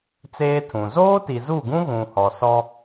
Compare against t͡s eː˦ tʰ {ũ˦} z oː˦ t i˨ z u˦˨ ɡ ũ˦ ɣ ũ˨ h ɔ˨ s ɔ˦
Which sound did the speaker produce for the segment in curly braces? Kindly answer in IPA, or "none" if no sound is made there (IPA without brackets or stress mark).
ũ˨